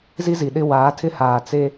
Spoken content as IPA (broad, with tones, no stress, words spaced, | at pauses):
zi˦zi˨ɗɪ˦ waː˨˦ tʰɪ˦haː˨ t͡se˦